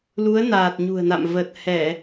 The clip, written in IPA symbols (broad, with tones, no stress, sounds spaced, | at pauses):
l u˨˦ ə̯ n aː˨˩ t̚ ɲ ṳ˨˩ ə̯ n a̰˧˨ m v ə˨˩ t̚ h ɛ˧˩˨